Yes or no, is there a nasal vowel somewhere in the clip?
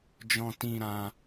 yes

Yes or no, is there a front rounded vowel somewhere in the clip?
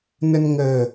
no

